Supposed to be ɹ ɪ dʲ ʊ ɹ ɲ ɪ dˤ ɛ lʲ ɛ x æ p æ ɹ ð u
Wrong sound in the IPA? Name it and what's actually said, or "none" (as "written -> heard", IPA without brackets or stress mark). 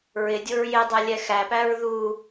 ɲ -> j